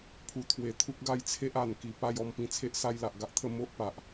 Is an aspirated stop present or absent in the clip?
present